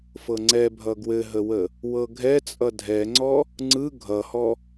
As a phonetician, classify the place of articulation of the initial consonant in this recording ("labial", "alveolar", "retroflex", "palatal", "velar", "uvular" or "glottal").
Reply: labial